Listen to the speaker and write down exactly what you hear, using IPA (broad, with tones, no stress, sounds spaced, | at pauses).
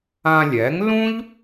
ã˧ lʲ ɛ˩˥ ŋ l ũ˥ ʎ